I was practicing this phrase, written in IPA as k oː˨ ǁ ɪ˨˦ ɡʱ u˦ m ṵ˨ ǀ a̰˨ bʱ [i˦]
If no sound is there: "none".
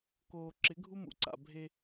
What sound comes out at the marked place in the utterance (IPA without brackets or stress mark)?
e˦